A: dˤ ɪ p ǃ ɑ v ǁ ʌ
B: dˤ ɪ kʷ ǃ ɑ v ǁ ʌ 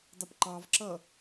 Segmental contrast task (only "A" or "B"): A